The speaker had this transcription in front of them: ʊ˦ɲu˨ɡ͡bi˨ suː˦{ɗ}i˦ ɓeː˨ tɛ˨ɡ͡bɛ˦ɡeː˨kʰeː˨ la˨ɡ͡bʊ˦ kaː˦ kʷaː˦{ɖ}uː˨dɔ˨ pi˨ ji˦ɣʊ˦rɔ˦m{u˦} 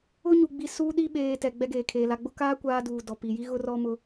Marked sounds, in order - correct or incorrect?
correct, incorrect, incorrect

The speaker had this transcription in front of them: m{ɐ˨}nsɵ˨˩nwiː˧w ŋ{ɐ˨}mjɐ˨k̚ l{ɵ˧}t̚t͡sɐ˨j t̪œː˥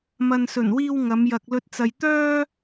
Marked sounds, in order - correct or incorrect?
correct, incorrect, correct

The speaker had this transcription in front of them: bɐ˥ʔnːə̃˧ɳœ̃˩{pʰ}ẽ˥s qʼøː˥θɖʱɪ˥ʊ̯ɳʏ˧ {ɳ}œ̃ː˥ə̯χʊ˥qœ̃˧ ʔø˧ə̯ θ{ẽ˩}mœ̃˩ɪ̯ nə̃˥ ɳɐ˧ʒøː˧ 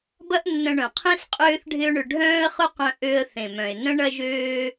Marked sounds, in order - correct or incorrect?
incorrect, incorrect, correct

